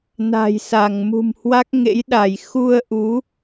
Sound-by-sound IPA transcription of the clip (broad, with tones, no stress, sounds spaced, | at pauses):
n a̤˨˩ j s a˧˩ ŋ m ṳ˨˩ m h w a˦˥ k̚ ŋ ḛ˧˥ j ɗ a˧˩ j x u˧ ə̯ ʔ u˨˦